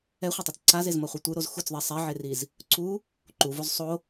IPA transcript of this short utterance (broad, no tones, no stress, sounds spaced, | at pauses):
ɛ χʷ ʌ tˤ ʌ t͡s ǀʰ a z e z m ʌ χʷ ɯ tʷ ɯ ɾ o z x u t͡s ðˤ ɛ sˤ ɛ ʕ e r i z | ǀʰ u | ǃ u v o z sˤ o